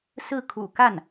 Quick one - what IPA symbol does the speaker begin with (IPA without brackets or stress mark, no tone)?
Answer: s